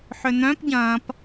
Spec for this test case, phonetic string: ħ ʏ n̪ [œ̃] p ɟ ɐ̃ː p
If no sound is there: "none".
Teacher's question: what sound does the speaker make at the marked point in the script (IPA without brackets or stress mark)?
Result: œ̃